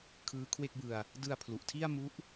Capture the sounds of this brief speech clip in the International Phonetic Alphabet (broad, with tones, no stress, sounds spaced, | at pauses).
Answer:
kʰ ɯː˦˥ kʰ w e˥˩ k̚ b ɯ˧ a̯ | d ɯ˧ a̯ pʰ l u˨˩ ʔ tʰ i˥˩ a̯ m u˦˥ ʔ